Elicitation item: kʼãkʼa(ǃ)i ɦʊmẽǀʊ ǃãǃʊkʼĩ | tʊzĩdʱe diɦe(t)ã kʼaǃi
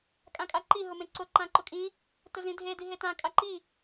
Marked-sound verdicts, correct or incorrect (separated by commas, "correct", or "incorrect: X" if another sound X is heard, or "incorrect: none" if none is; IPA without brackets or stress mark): correct, correct